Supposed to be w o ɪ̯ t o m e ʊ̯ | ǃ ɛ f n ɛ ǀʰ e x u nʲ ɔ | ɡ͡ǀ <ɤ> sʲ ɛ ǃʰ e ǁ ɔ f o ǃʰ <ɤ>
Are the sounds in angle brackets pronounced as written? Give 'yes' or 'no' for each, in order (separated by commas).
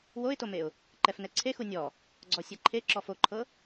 no, yes